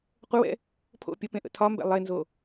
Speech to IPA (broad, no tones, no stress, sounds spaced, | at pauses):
qʷ ə w ɛ̰ | pʰ o̰ pʲ ə p ẽ ʔ ə̰ tʰ ɒ m b ɛ̰ lˠ e n z o